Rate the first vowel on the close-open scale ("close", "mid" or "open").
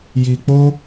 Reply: close